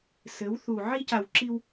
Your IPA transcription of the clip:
sɘ˨˦wθu˨ ʕi˦ca˨wǁi˦w

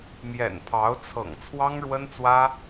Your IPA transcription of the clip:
mjɛ̰˨˩npʰɑ˧˥ʊ̯t͡sʰɤ̰˨˩ŋ t͡sʰwɑ˥ŋɻwə˥nt͡swä˥

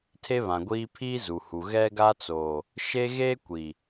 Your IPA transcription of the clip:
tʰe˦βã˨ɡʷiː˦ pʰiː˦zu˨hu˨ ɣɛ˦ ɡa˦t͡soː˨ | ʃeː˦ɣeː˦ kʷi˨

